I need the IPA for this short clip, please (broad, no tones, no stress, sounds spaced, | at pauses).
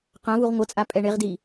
q ã v u ʁ ŋʷ ɤ t͡sʼ a pʼ ɛ ɳ e ʁ d i